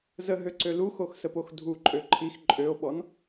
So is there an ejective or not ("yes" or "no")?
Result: yes